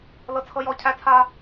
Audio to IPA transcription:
l ɤ˥ t͡sʰ ɤ˥ j ɔ˥ cʰ æ˥ t͡sʰ a˥

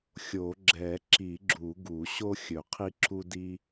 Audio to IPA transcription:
xʲ o˨˩˦ ɡ͡ǁ ɛ˨˩˦ ǁ i˨˩˦ ɡ͡ǁ u˨˩˦ ɡ u˨˩˦ ɕ o˥ xʲ ɵ˨˩˦ qʰ i˥ ǁ u˥ d i˥

